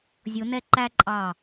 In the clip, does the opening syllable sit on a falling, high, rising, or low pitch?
rising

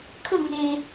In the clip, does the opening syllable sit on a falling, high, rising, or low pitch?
falling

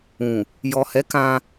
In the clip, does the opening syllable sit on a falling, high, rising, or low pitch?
low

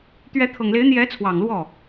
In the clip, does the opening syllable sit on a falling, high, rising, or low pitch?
rising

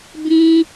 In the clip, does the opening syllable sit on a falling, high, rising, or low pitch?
high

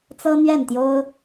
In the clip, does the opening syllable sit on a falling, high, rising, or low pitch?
high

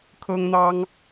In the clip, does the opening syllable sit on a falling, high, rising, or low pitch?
high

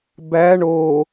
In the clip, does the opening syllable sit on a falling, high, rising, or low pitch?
rising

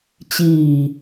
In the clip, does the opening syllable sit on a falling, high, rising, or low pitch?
low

